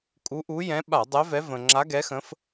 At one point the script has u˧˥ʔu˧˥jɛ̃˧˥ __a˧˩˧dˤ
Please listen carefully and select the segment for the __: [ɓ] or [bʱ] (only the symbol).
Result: ɓ